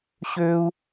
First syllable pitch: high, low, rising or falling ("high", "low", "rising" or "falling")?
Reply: high